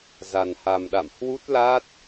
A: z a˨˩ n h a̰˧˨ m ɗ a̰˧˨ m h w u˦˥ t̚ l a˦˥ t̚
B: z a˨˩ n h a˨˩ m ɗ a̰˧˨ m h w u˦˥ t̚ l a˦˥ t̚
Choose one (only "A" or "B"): B